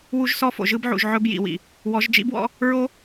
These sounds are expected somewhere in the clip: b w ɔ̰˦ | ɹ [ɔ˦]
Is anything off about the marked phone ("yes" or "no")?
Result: yes